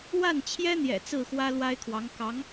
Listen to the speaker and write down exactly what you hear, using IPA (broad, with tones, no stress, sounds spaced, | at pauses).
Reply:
w a˥˩ n t͡ɕʰ j ɛ˥ n̪ j ɛ̰˨˩ t͡s ɹ̩˥˩ x w ä˥ l w a˥ ɪ̯ kʰ w ɑ˧˥ ŋ k ɑ˧˥ ŋ